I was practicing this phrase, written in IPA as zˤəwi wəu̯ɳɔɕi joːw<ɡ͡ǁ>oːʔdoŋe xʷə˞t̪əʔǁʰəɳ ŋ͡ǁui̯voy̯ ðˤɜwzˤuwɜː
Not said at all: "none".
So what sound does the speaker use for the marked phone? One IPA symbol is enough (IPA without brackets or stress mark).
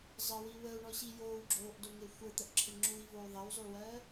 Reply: ɡ͡ǁ